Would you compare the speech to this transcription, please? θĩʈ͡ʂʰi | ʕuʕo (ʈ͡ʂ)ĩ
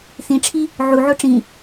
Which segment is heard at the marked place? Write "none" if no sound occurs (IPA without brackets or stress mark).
ʈ͡ʂ